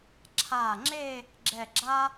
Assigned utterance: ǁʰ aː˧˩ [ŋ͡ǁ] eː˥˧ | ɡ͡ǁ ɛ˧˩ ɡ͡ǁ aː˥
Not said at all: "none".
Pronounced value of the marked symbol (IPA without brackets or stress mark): ŋ͡ǁ